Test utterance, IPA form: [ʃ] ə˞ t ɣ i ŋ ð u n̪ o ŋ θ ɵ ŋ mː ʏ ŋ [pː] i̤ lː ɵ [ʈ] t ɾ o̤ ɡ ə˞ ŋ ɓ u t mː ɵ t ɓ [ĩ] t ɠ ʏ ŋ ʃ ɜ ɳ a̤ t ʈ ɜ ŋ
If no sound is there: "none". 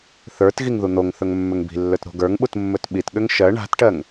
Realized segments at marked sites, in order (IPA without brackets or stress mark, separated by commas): θ, b, none, i